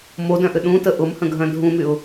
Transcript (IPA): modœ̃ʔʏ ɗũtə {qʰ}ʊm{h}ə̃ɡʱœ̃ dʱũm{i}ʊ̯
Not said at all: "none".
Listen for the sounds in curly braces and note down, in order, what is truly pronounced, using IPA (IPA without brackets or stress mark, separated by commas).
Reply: ʔ, h, y